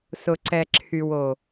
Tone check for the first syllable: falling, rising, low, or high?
low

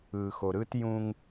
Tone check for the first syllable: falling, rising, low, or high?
low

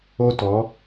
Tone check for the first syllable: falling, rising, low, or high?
high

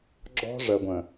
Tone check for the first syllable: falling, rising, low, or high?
high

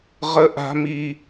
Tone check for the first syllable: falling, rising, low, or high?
high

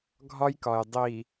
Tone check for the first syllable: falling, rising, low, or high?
high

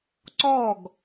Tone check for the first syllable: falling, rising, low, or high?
falling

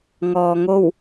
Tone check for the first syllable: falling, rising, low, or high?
low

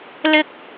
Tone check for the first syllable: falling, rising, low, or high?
high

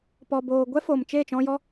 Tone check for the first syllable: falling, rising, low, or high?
low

